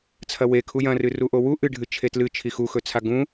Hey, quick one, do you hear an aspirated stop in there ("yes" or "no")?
yes